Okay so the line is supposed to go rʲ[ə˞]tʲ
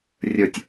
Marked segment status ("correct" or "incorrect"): correct